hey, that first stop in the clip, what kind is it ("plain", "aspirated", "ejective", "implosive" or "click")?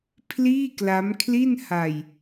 aspirated